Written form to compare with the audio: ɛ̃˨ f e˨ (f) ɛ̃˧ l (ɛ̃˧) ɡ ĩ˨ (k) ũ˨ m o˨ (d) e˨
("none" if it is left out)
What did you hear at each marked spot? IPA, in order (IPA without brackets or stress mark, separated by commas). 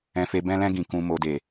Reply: b, ɛ̃˧, k, d